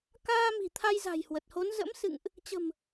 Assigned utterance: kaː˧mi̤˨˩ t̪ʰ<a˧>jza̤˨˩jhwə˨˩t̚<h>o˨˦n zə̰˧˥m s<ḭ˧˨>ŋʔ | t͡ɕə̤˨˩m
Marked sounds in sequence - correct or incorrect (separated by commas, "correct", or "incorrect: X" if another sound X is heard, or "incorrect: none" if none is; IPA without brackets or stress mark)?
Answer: correct, correct, incorrect: ɨ̰˧˨